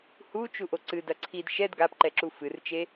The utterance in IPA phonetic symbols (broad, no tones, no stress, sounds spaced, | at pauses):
h u t͡ʃ u ʔ o ǀ ɨ d ɐ ǀʰ i d ʃ ɛ d ɡ a p ǃ ɛ ǁ u f ɨ r t͡ʃ e